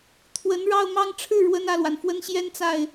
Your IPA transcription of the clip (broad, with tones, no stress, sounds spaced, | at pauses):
t̪ʰ w ə˧˥ n ɻ ɑ˥˧ ʊ̯ m ɑ˥˧ ŋ ʈ͡ʂʰ ɻ̩˥˩ ɻ w ə˥ n ä˥˩ l w a˩ n f w ə˥ n ɕ j ɛ˥ n t͡s a˥˩ ɪ̯